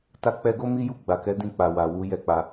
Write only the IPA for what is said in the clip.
t a˧ k͡p ɛ˧ ɡ o˦ m i˦ j u˦˨ ɡ͡b a˨ k ɛ˨˦ d ĩ˦˨ k͡p a˨ w a˨ w u˨˦ j ɛ˦ k͡p a˧

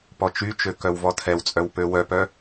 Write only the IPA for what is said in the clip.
p ɔ t͡ʃ y t͡ʃ ø k œ w v ɔ tʰ ɛ w t͡sʼ œ w p ø w œ p œ

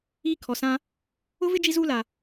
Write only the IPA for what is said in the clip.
iː˦ kʰ ɔ˨ s ã˦ | ʊ˦ v ɪ˦ d͡ʒ i˦ z uː˦ l a˨

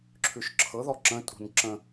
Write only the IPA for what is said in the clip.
ǁʰ ʉ ʃ ǁʰ ɤ ð ɔ ǁ ə̃ tʼ ṳ n ǁ ə̃

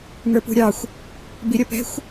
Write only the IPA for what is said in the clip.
ŋ ə˞ p ṳ ɾʲ ɑ xʷ | b i ɾʲ ʌ p ɛ̤ xʷ

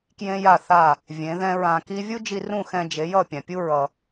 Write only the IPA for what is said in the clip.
k j ẽ˦ j a˦˨ θ a˦˨ | vʲ ẽ˨˦ ð ɛ̃˦ ɹ ã˧ k i˦ vʲ u˦ d͡ʒ i˧ r ũ˦˨ x ɛ̃˧ d͡ʒ e˨˦ j ʌ˦˨ pʲ ã˨ pʲ u˦ ɹ ʌ˧

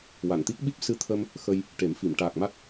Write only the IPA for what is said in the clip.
w a˨˩˨ n t̪ i˦˥ k̚ ɓ i˦˥ p̚ s ɨ˧ t̪ʰ ə˧ m | x ə˧ j | ʈ e˨˩˦ m f i˨˩˨ m ʈ aː˨˩ k̚ m a˦˥ t̚

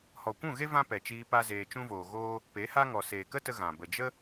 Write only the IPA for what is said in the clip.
h ɔ˨ kʷ ũ˦˨ ɣ e˦ v ã˦ p ɛ˨ t͡ʃ iː˧ p a˦ z eː˧ t͡ʃ ũ˦ v oː˨ ɣ oː˦ | p e˨˦ h a˦ ŋ ɔ˨ s eː˨ k ə˦ t ə˧ ɣ ã˨ b ə˨ d͡ʒ ə˦

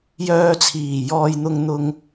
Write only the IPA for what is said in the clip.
j œː˧ t͡sʰ iː˨˩ j ɔː˧ j n̪ ʊ˧ ŋ n̪ ʊ˧ ŋ

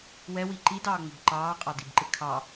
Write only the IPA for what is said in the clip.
w ɛ w i ǃ i d ɑː ŋ͡m ɪ b ǃ ɑː qʼ ɑ d i b ǃ ɪ kʰ ɑ

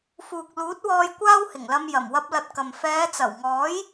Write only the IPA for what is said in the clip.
f uː˨ k̚ l uː˨˥ t̚ w ɔː˧ j kʷ aː˥ w h ɪ˨˩ ŋ l ɐ˧ m j ɐ˨˩ m w ɐ˧ p̚ l ɐ˧ t̚ k ɐ˨ m f ɛː˨˧ t͡s ɐ˨˩ w ŋ ɔː˨˥ j

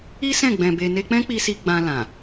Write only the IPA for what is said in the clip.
i˦ s ɛ̃˦˨ ɡ͡b ɛ̃˧ b e˧ n e˧ k͡p ɛ̃˦ k͡p i˧ s i˧ ɡ͡b ã˧ l ã˨

